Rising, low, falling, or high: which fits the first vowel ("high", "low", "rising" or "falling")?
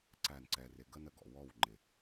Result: falling